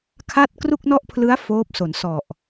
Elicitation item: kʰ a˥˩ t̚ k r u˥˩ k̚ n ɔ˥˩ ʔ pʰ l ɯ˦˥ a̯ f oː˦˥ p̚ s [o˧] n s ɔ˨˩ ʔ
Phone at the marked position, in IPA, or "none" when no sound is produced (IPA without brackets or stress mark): o˩˦